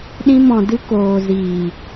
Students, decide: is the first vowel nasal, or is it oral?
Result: nasal